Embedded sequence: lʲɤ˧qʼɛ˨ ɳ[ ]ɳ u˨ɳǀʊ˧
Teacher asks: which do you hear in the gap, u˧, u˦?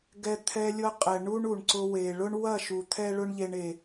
u˦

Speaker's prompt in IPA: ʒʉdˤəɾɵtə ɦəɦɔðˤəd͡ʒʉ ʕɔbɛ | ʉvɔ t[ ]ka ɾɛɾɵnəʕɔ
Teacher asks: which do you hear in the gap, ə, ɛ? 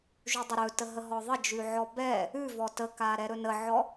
ə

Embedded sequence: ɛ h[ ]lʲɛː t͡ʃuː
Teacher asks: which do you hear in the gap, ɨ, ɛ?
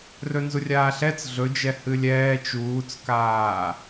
ɨ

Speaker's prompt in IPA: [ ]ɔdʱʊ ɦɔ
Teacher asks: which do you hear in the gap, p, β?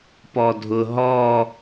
p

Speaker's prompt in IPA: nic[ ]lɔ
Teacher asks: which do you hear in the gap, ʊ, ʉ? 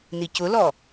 ʊ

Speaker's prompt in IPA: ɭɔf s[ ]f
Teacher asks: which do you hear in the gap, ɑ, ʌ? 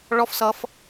ʌ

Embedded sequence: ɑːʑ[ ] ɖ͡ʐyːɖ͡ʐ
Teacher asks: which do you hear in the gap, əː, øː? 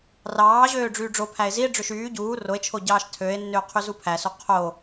øː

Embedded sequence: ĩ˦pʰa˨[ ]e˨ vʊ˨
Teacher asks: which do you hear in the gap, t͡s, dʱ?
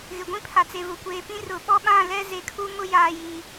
t͡s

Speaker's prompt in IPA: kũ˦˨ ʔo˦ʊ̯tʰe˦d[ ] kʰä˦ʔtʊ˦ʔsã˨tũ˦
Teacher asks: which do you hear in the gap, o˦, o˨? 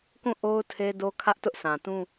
o˦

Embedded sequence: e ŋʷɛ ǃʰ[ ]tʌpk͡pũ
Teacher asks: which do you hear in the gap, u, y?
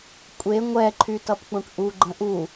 y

